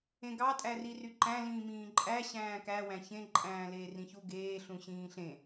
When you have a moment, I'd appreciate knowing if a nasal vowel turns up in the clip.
yes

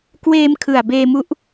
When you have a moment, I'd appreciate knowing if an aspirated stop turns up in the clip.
yes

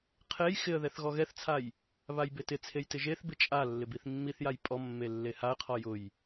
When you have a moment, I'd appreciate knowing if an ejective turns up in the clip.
yes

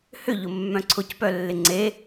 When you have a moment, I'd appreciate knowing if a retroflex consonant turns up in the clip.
no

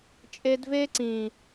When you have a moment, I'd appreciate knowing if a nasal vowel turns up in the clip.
yes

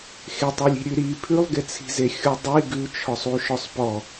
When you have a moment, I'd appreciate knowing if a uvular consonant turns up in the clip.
no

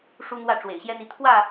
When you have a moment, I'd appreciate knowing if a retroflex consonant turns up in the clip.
yes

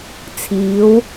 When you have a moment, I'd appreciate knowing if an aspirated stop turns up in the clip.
yes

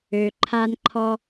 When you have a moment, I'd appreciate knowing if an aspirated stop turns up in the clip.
yes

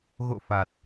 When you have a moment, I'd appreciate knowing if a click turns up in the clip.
no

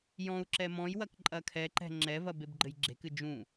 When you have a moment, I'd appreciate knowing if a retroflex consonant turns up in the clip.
no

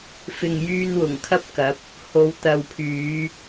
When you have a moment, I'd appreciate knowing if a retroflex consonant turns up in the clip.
no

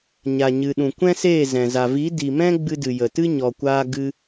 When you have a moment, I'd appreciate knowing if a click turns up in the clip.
no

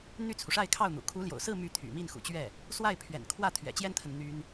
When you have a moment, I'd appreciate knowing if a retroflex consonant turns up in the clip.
yes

